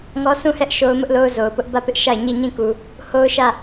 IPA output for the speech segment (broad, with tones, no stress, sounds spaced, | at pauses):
ŋ ɔ˦ sʰ ũ˦˨ h ɛ˦ ʔ ʃ o˦ ʊ̯ m ʊ˦ ʔ l o˦ ʊ̯ z o˨ ʊ̯ p ʊ˦ ʔ b ä˦˨ p ɪ˦ ʔ ʃ a˦˨ ɪ̯ ɲ i˦˨ ɲ ĩ˦˨ k u˨ | h o˦ ʊ̯ ʃ ä˦˨